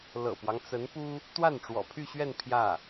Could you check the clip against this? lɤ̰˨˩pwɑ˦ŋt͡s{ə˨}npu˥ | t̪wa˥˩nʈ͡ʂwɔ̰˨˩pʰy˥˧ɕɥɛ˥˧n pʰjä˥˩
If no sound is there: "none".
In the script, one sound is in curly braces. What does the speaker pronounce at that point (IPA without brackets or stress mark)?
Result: ə˧˥